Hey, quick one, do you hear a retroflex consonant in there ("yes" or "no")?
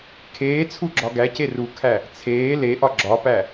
no